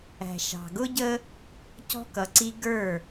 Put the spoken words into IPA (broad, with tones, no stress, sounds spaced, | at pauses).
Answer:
æ̤˨ ʃ ɑ̤˨ ɡ ʊ˦ ɟ ə˦ | c ɔ̤˦ k ʌ˨ ǀ i˦ ɡ ə˞˦˨